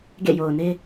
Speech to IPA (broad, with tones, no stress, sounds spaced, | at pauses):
ɡ ḛ˦˨ j o˨ ʊ̯ n e˦